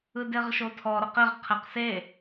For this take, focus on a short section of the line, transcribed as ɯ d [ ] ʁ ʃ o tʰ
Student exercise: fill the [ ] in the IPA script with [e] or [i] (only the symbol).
e